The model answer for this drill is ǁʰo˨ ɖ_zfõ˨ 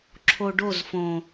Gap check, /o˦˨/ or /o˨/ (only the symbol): o˦˨